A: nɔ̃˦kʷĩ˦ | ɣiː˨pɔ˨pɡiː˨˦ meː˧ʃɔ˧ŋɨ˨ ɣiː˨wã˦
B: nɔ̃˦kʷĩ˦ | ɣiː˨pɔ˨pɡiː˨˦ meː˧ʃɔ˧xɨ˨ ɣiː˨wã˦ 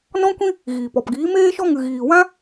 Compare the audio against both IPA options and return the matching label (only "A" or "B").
A